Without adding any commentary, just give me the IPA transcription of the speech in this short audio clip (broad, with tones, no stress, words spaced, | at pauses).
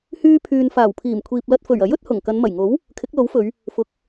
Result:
hyː˥pʰyː˧n faː˨˩wpʰiː˨˩mkʷʰiː˨p̚ lɐ˧t̚ fɵ˨˩ɥɐ˨˥jɵ˨˥t̚ hʊ˨˩ŋkɐ˨˧nmɐ˨˩jŋo˨˥w | kʰɪ˨˥k̚lo˨˥wfɵ˨˧ɥ | fʊ˨˥k̚